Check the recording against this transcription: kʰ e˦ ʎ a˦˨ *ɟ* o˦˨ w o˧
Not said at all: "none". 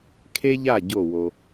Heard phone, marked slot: ɟ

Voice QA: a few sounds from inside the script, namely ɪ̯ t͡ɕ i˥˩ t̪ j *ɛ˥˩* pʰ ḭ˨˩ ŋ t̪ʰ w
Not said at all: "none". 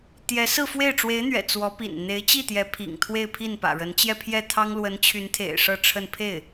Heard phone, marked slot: ɛ˧˥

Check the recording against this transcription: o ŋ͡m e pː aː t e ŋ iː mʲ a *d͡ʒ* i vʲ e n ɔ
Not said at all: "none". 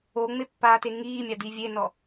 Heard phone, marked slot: d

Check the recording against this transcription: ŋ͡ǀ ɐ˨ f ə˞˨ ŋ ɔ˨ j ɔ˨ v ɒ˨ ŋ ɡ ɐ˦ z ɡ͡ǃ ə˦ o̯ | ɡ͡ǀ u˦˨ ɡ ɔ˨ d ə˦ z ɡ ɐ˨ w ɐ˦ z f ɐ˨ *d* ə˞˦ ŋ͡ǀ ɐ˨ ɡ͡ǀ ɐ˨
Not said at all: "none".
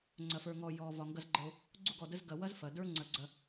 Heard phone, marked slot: d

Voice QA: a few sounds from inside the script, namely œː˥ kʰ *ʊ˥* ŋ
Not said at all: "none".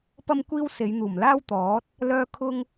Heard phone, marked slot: ʊ˥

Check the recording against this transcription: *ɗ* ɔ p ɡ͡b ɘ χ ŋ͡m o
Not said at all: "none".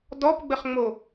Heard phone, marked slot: d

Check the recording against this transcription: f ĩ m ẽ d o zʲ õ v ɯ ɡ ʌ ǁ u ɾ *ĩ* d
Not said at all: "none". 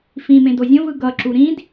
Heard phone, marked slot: ĩ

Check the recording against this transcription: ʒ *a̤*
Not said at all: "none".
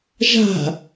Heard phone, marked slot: a̤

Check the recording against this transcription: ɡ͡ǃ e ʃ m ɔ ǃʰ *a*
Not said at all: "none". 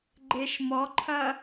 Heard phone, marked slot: ɐ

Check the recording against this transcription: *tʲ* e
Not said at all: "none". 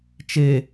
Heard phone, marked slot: t͡ʃ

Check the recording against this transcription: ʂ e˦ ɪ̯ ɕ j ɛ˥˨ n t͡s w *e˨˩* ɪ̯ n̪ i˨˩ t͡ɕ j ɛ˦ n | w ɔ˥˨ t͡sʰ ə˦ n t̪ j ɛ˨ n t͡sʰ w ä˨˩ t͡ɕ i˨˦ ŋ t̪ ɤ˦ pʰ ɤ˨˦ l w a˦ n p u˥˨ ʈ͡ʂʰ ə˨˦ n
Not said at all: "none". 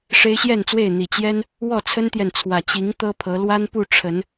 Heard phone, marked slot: e˥˨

